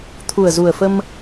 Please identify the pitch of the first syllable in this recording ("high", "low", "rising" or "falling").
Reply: low